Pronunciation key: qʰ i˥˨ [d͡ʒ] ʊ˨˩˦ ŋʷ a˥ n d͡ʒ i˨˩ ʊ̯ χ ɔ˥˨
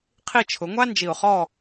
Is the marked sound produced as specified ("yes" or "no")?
no